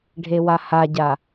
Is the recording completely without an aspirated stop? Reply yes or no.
yes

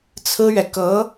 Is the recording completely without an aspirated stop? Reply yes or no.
no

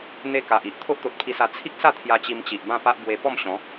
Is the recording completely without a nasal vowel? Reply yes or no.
no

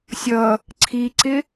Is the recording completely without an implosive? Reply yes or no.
yes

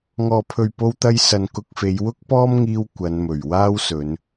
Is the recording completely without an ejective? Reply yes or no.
yes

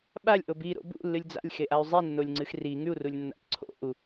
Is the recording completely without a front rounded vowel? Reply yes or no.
no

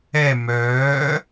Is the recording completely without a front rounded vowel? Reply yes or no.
no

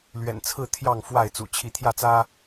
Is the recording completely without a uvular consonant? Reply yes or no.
yes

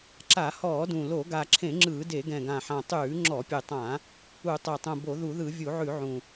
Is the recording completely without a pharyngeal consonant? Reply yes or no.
no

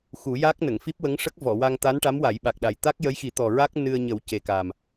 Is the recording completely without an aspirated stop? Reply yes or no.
yes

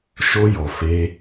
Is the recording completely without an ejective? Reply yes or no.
yes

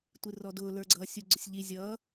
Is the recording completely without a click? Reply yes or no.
no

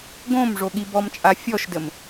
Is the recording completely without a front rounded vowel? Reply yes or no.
yes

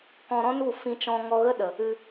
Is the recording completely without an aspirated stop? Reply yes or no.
yes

